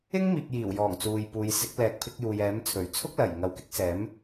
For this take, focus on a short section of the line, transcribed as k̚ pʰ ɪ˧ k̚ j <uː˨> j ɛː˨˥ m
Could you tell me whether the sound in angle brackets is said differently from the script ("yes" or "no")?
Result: no